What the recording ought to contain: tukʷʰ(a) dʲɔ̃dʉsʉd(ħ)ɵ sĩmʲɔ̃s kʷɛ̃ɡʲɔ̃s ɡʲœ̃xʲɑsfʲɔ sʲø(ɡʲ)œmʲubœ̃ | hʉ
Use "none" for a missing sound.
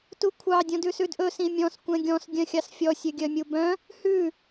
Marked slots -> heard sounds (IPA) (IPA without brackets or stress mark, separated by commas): ɑ, ʔ, ɡʲ